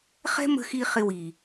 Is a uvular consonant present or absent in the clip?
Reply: present